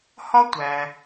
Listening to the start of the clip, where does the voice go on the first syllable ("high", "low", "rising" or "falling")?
high